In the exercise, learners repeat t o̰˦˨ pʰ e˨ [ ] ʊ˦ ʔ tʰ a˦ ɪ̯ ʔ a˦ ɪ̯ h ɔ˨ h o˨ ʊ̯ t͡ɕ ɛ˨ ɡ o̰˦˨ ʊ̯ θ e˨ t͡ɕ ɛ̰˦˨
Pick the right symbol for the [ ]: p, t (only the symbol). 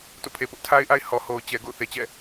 p